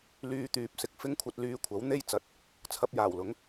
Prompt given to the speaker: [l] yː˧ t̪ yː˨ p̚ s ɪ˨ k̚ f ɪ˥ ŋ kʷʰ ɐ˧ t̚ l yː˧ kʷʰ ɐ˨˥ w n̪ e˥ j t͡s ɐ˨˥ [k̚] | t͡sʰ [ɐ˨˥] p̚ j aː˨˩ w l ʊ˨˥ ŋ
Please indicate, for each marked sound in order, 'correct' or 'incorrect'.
correct, incorrect, incorrect

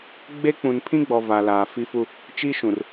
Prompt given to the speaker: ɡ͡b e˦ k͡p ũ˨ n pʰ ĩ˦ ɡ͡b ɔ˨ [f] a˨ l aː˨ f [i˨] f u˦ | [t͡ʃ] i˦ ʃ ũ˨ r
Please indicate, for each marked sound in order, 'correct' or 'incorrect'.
incorrect, incorrect, correct

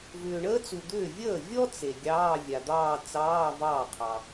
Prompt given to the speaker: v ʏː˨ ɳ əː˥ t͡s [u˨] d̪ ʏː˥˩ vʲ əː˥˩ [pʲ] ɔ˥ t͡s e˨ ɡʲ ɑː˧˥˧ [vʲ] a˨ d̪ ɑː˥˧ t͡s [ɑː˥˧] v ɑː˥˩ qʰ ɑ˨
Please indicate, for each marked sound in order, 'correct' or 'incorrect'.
correct, incorrect, correct, incorrect

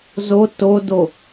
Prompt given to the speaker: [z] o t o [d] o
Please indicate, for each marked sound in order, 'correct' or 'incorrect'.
correct, correct

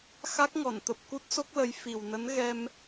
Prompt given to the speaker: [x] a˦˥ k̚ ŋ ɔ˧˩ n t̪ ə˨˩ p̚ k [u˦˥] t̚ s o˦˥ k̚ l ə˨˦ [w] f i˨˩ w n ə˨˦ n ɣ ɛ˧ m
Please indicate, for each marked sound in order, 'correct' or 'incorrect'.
correct, correct, incorrect

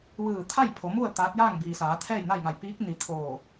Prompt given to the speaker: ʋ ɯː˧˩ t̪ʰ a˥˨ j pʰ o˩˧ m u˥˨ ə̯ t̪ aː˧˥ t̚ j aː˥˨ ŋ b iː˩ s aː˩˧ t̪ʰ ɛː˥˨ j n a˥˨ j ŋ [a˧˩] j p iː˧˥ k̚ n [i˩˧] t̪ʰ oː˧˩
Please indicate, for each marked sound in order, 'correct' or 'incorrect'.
correct, correct

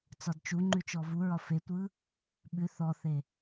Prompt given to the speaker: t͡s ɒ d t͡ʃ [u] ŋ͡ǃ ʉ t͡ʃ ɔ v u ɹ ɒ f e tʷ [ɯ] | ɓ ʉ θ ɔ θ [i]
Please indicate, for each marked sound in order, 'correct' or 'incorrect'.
correct, correct, incorrect

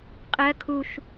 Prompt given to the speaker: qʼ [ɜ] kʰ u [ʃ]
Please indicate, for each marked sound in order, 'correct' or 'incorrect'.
correct, correct

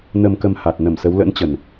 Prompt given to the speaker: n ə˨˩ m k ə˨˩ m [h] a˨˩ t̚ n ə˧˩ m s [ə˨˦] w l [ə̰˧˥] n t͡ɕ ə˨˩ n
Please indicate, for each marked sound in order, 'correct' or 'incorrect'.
correct, correct, correct

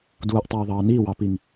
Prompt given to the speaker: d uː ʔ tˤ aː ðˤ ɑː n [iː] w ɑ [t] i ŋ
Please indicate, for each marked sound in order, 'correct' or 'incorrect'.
correct, incorrect

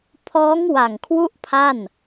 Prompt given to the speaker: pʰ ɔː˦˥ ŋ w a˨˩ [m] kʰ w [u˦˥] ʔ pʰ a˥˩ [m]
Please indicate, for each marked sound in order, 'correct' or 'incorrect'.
incorrect, correct, incorrect

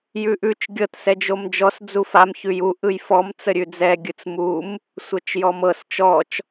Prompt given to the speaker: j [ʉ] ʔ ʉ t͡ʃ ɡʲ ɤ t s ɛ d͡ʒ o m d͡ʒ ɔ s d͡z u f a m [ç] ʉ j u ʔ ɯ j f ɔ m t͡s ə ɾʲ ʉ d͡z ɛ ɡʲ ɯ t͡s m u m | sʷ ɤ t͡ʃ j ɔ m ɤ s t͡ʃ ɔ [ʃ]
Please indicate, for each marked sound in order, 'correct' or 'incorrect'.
correct, correct, incorrect

